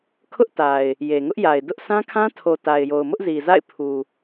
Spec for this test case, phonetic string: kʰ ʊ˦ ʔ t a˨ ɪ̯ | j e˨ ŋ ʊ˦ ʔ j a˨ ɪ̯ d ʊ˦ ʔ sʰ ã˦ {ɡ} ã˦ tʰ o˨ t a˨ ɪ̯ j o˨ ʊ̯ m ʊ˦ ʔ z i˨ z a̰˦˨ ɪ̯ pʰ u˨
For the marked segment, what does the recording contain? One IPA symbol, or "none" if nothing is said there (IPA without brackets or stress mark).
kʰ